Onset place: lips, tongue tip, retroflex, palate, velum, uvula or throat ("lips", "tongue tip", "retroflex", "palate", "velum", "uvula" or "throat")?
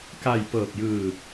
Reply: velum